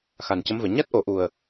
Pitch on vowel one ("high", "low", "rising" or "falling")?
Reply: low